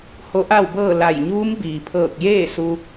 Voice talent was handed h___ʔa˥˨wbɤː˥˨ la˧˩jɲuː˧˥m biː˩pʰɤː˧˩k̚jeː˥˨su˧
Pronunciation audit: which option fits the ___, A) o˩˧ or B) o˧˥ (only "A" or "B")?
B